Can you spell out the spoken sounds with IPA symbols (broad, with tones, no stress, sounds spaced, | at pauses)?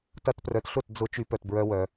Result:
t ɐ˦ t p r œ˧ t ɬ ʊ˦˨ t d͡z ʊ˦ t͡ʃ y˧ p œ˨ t b ɹ œ˦ w œ˧